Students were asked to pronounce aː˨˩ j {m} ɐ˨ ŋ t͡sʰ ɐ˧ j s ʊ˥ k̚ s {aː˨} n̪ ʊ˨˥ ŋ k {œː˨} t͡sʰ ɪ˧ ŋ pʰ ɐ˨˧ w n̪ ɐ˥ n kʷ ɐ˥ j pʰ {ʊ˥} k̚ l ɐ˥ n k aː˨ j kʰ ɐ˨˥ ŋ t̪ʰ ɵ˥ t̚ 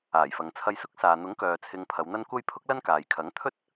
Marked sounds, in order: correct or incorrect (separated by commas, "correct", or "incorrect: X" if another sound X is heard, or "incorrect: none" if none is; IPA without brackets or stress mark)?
incorrect: f, correct, correct, correct